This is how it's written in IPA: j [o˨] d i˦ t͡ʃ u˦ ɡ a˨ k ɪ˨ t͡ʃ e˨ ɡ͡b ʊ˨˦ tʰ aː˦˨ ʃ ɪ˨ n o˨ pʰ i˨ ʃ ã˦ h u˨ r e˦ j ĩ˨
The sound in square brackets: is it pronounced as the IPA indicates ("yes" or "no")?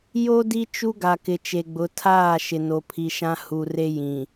no